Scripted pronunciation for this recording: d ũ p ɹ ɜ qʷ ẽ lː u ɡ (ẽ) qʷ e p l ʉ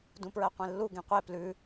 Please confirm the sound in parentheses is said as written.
yes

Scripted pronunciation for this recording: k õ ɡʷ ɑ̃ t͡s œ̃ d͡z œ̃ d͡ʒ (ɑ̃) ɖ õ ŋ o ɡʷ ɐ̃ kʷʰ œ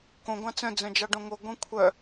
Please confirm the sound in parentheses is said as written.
no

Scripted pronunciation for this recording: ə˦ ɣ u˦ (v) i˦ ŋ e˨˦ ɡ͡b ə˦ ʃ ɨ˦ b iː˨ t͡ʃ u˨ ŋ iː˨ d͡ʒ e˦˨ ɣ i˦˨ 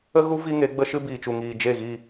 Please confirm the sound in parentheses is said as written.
yes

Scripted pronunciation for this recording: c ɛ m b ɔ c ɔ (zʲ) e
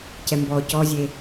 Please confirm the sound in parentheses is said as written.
yes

